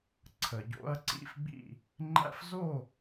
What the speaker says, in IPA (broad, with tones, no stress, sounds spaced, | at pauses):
ǀʰ ə˩ ɟ o̰˦ ɐ̯ ǀ ḭ˥˨ f ɡ͡b ḭ˥˨ | ŋ͡ǃ æ̰˦ f z o˥˨